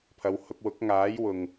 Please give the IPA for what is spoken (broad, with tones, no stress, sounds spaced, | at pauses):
pʰ ɐ˨˧ w h ʊ˧ k̚ w ʊ˨˥ k̚ ŋ aː˨˥ j w ʊ˨ ŋ